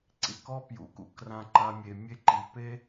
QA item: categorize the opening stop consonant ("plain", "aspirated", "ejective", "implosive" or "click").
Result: click